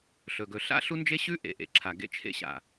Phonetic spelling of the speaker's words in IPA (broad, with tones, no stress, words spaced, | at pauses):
ɬɵ˨ɡɵ˨ ɬa̰˦ɬu˦nd͡ʒe˦ɕʉ˦ ʔḛ˨ʔḛ˨ ǁʰa˨ɡḛ˦t͡ʃʰḛ˦ ɕa̰˨